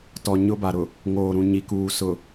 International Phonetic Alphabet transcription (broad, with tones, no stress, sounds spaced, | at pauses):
t ɔ˨ ɲ ʊ˦ b a˨ ɾ ʊ˨ | ŋ oː˨ ɾ ũ˨ ɲ i˨ k uː˨ s ʊ˨